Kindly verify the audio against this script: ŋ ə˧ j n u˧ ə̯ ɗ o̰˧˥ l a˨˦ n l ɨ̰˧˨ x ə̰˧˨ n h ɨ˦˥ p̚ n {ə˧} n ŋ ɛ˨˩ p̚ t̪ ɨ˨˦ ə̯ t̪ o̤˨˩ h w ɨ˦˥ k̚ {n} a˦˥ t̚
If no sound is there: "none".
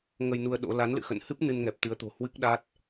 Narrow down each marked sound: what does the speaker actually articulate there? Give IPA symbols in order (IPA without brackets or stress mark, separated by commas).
ɨ˧, ɗ